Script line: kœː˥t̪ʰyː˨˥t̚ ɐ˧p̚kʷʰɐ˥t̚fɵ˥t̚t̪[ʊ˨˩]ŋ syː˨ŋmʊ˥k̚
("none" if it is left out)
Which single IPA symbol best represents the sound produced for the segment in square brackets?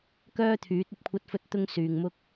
ʊ˥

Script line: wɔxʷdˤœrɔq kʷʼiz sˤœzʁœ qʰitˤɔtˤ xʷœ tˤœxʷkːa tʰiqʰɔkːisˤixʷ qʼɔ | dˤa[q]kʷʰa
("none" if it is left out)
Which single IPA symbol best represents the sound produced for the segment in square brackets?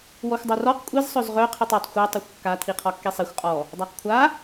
q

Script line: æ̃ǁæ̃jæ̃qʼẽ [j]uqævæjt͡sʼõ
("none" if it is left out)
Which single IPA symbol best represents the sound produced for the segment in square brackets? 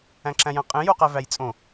j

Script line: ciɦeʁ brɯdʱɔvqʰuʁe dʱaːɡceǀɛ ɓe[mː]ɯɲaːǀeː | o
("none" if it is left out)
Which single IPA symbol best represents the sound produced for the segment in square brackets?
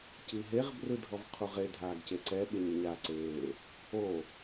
ɲ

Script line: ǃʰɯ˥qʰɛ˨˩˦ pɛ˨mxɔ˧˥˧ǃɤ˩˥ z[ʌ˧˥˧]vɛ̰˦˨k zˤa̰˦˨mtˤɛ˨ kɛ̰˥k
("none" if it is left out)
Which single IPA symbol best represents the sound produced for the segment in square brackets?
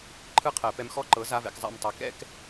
a˧˥˧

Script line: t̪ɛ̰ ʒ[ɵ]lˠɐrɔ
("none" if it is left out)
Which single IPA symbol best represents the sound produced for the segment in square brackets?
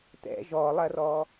ɔ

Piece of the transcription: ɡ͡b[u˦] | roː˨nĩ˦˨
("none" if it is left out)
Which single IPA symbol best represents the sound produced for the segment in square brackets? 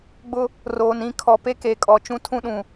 ʊ˦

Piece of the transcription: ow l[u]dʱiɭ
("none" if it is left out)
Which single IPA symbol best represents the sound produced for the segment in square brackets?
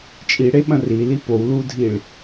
u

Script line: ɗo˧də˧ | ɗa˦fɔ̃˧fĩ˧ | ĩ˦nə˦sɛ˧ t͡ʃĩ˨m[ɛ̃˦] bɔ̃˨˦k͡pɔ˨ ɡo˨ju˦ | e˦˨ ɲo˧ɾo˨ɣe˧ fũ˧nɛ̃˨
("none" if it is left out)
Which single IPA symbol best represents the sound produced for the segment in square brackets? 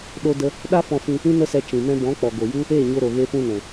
ɛ̃˧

